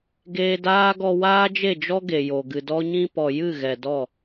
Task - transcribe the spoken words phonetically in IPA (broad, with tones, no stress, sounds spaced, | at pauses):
ɡ eː˧ d aː˦ ɡ ɔ˧ w aː˦ d͡ʒ e˦˨ d͡ʒ ɔ˦ ɡ e˨ j o˨ ɡ ɨ˨ d ɔ˦ ɲ ĩ˦ p ɔ˨ j ɨ˦˨ ɣ ɛ˨ d ɔ˦˨